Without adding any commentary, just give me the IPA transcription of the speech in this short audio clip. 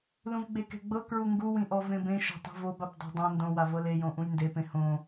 lũvɡ͡bekɛ̤ɡ͡bɤ kɹuŋɡuwĩ ʔɔvẽbẽʃa̤ tˤɛ̤vobap dˤa̤dˤõ ndõwavɤ lejõʔũj ndepẽ hõ

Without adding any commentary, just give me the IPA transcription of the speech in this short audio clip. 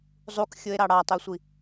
zˤukxʲoe̯ɾɑ ɽɑtˤøsʷi

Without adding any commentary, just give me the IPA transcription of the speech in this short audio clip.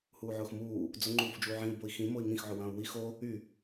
huːʕʊːxmuː | d͡zʊ ŋ͡ǃuːfd͡ʒuːʕĩu̯ boi̯xĩ moi̯ŋĩx ʕʊwɐ̃ːu̯wi xo | y

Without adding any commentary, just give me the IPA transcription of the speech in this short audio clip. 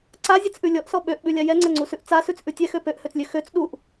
ǀazʲɛt͡sʔʉ lʲɔʔsɔ ɓøʔɓʉlʲa jɛŋ͡ǀɛŋ͡ǀusʉʔ t͡sasʉt͡sʔʉ tʲɛxø pøʔhøt͡slʲø xøt͡s ɗuʔ

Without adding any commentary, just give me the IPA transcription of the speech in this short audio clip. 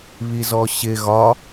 βizɔɕɪ ɣɒ

